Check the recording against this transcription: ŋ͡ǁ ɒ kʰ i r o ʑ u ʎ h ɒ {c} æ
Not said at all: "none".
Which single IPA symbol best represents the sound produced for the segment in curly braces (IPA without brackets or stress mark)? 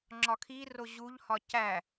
c